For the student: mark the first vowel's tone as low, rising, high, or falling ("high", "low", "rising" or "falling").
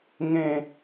falling